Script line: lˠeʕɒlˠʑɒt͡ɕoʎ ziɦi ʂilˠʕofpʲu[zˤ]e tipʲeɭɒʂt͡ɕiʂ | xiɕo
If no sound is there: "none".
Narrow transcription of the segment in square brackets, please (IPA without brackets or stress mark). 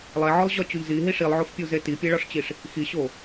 z